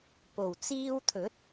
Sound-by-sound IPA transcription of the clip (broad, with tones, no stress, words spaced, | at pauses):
po˨˩w t͡siː˧wt̪ʰɵ˨˥t̚